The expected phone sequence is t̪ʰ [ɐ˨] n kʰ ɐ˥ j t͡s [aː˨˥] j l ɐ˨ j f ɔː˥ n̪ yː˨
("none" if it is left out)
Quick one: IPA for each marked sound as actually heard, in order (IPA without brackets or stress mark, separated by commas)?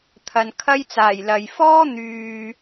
ɐ˨, aː˨˩